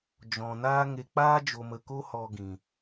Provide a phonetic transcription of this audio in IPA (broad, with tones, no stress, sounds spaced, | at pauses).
d͡ʒ ɔ̃˨ n aː˦ ŋ e˧ k͡p aː˦ d͡ʒ o˨ m ə˨ k o˦ h ɔ˧ ɡ ĩ˨